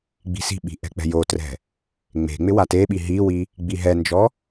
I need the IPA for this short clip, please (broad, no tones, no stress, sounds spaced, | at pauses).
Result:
ɡ͡b i̤ s i̤ ɓ i̤ ʔ ɛ̤ k͡p ɛ̤ j o t r ɛ̤ | ŋ͡m e̤ ŋ͡m ɪ w a t e ɓ i ɦ i w i | ɡ͡b i ɦ ɛ n d͡ʒ ɔ